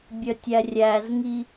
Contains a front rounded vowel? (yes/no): yes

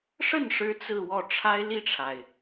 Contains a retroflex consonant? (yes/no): yes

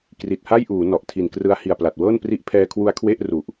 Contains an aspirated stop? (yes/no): yes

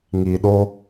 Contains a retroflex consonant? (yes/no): no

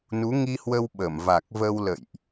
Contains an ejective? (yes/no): no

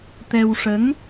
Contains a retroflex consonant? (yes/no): yes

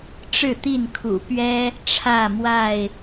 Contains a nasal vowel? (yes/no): no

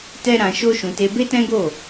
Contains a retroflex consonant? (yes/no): no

